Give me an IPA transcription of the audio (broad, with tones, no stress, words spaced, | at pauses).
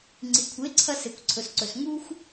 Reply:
ŋ͡ǀi˨kʷʰe˨˦ǀʰɐ˧ se˨kʷǀʰɵ˨sǀɵ˨s ŋu˦xʷ